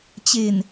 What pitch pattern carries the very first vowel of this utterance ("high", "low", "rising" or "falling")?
low